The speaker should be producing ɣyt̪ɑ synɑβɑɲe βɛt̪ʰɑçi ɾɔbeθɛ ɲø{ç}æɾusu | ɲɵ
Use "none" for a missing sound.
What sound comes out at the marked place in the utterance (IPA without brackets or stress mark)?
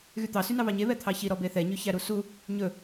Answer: ç